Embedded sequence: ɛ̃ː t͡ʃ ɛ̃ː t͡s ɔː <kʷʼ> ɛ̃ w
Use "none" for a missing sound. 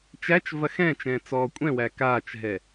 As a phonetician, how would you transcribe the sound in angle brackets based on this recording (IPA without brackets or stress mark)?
kʷʼ